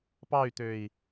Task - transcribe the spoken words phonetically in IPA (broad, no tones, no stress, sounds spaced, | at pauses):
p ɑ y̯ t̪ ø i̯